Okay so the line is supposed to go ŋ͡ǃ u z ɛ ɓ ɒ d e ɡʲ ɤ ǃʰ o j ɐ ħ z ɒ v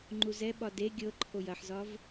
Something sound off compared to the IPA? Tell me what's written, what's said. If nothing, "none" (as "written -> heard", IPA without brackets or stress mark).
none